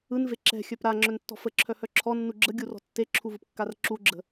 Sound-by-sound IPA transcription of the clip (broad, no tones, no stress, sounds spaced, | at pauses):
ɯ n v e ǁ ɛ̤ xʲ œ p ɾ a ŋ͡ǁ œ n tː ɔ̤ f ə ǁʰ œ h œ ǁʰ ɔ nː u ɡ͡ǁ ə ɡʲ u r ɔ̤ tː e ǁʰ u v ɯ p kː a r ǁ u ɡ͡ǁ ə̤